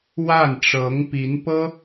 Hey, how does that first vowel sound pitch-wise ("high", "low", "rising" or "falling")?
falling